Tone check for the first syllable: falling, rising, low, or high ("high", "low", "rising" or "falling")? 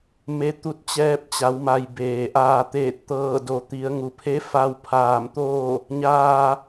rising